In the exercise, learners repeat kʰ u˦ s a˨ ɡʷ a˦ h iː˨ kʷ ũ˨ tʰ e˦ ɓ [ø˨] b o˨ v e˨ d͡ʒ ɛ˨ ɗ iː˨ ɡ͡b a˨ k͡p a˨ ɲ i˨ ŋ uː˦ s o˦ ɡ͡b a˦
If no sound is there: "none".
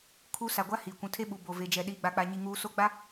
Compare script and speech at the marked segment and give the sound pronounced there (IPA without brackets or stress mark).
u˨